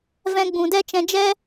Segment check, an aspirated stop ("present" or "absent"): absent